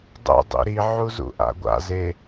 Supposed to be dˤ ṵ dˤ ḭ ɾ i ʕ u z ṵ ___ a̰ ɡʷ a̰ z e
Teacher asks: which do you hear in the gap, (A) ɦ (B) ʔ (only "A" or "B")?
B